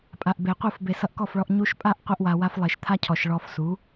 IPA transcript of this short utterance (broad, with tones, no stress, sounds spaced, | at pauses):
pʼ a˨ ʔ b e˨ qʷ ɯ˦˨ f b e˨ s ʌ˧ ʔ k ɔ˦˨ f ɭ ɔ˧ ʔ ɲ u˧ ʃ pʼ a˦ ʔ qʷ e˦ ʔ w a˧ w a˦ f lˠ e˨ ʃ t̪ʰ a˦ cʰ ɔ˨ ʃ ɭ ɔ˧ f s u˨˦